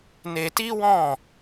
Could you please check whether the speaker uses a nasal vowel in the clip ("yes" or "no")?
yes